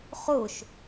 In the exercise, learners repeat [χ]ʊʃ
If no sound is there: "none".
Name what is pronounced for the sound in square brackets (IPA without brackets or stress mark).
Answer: χ